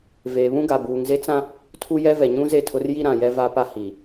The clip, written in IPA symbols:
v eː˨ β ũ˦ ɡ a˨ b uː˨ ŋ z e˦ t͡s ã˦ | tʰ u˦ j ɛ˦ v ɛ˨ ɲ ũ˦ z e˦˨ tʰ ʊ˦ r j i˦ ɾ ã˨ j ɛ˦ v a˦ p a˦ h i˨

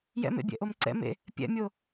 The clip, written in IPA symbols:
j ɛ̰ m ḛ bʲ ɛ̰ ʔ o m ǀ ɛ̰ m ḛ | pʲ ɛ̰ mʲ o

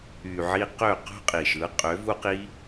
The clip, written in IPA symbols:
y˨ ʕ i˧ q ø˦˨ q o̤˦ qʼ i˨ ʃ ɯ˨˦ qʼ ø˨˦ v u˦ q i˦

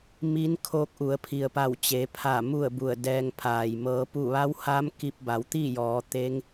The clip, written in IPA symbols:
m i˧˥ n kʰ oː˧ k̚ ʔ u˩˧ ə̯ pʰ i˩ ə̯ p a˧˩ w t͡ɕ e˩˧ pʰ a˧˩ m u˥˨ ə̯ b u˧˩ ə̯ d ɛː˧ ŋ pʰ aː˩ j m ɤː˩˧ p u˧˩ ʋ a˧˥ w h aː˧˥ m k i˧ p̚ b a˩˧ w t̪ iː˥˨ j ɔː˩˧ t̪ e˧˥ ŋ

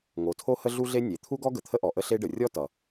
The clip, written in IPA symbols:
ŋ o˩ tʰ o˥ h ə˥ ɮ u˥ ɮ e˥ nʲ e˩ t̪ʰ u˥ ɡ ɔ˥ ɡ ə˩ t̪ʰ ə˥ ʔ ɔ˩ ʔ ə˥ ɬ e˥ ɖ ə˩ rʲ ɔ˥ t ʌ˩

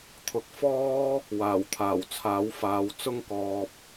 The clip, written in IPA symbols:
t̪ʰ ʊ˨ k̚ f ɔː˥ | w aː˨˩ w t̪ʰ aː˨˩ w t͡sʰ aː˨˥ w f aː˨˧ w t͡s ʊ˥ ŋ k ɔː˧ p̚

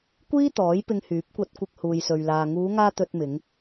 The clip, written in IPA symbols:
kʷ iː˥ t̪ ɔː˨˥ j p ɪ˧ ŋ h yː˨˥ p̚ kʷ ɐ˧ t̚ kʷ ɪ˧ k̚ h uː˨ j s ɵ˨ ɥ l aː˨ ŋ uː˨˧ ŋ aː˧ t̪ ɵ˧ t̚ m ɪ˨˧ ŋ

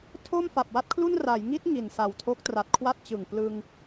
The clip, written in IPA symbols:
tʰ o˥˩ m f a˨˩ p̚ w a˥˩ t̚ kʰ l u˥˩ n r a˩˦ j ŋ i˦˥ t̚ ŋ i˨˩ n s a˨˩ w tʰ o˦˥ k̚ t r a˨˩ t̚ kʰ w a˥˩ t̚ t͡ɕ ɯ˨˩ ŋ p l ɯ˧ ŋ

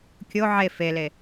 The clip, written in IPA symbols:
kʲ o ʕ e f e l e

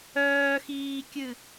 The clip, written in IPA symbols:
œː x iː kʲ ɨ

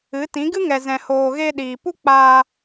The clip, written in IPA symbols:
ɨ˨˦ t ĩ˨˦ ɡ ɨ˦ ŋ ɛ˨ z ɛ̃˨ h oː˨ ɣ e˧ ɗ iː˨ p u˦ k͡p aː˧

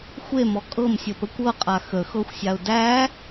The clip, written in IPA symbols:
xʷ e m ɔ kʼ ɤ m sʲ ə p ə kʷ ɤ qʼ a x ə x ɤ xʷ sʲ a ʊ̯ d æ

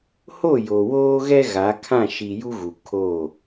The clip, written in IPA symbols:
h o˦˨ j o˨ w oː˦ ɣ ɛ˦ ɣ a˨˦ kʰ ã˦˨ ʃ i˨ j u˦ ɣ u˨ kʰ o˦˨

